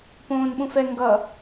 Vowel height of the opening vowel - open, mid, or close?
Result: mid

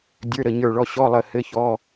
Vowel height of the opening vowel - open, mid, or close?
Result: mid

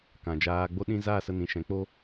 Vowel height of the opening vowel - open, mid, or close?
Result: open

